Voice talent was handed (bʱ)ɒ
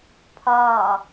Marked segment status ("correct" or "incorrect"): incorrect